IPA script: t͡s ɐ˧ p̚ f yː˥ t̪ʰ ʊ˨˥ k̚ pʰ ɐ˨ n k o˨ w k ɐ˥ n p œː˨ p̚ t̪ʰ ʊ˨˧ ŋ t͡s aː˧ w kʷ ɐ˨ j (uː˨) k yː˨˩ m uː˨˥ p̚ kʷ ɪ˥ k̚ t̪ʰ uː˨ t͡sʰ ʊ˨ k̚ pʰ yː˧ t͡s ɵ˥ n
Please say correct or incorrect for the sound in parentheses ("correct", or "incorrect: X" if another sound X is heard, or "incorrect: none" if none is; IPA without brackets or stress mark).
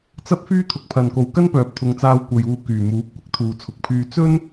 correct